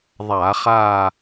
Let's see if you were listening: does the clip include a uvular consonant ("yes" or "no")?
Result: yes